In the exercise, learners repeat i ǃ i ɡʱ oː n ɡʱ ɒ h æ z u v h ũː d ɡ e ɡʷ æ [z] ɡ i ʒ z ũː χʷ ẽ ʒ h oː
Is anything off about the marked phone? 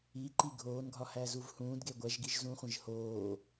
yes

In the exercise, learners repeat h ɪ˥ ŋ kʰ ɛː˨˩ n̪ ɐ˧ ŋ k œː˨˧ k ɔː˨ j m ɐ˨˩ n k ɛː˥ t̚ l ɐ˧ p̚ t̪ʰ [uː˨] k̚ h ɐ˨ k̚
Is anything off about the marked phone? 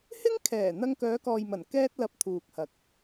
no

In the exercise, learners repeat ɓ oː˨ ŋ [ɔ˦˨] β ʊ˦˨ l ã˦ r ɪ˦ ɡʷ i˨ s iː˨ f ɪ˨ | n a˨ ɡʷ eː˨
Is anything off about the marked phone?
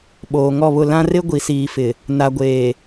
no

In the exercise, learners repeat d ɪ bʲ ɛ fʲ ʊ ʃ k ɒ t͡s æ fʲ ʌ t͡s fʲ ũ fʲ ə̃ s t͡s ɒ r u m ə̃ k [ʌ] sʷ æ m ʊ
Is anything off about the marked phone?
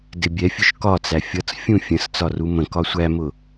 yes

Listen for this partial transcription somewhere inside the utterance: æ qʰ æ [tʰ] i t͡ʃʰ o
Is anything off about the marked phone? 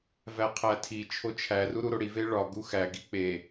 no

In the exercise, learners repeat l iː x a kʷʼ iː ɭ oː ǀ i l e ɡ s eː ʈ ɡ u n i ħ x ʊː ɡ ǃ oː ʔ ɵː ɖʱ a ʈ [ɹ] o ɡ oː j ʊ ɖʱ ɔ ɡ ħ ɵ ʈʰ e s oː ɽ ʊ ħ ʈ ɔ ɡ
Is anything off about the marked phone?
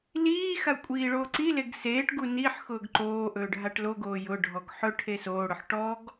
yes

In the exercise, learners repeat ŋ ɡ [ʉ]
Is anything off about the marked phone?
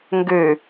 yes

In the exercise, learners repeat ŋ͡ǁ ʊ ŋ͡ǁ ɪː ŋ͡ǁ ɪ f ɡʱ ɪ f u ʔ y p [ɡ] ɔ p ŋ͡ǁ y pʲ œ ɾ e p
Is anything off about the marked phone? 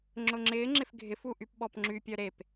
yes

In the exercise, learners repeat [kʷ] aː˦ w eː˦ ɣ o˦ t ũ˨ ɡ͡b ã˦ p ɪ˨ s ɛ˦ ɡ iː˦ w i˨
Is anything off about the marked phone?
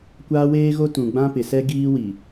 no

